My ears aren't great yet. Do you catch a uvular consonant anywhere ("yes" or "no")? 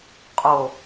yes